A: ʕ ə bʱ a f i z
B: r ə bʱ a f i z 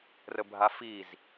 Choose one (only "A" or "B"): B